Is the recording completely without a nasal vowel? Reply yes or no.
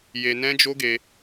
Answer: no